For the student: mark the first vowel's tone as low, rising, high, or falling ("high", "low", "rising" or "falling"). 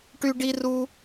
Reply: high